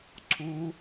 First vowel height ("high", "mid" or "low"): high